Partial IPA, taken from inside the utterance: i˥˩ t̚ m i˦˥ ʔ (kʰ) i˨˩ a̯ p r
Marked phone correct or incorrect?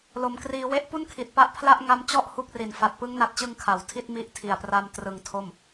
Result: incorrect